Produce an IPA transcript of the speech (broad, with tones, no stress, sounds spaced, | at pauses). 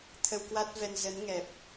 t̪ʰ ə˧ w k w a˦˥ t̚ v ɛ˧ n z ə˨˦ n ŋ ɛ˨˩ p̚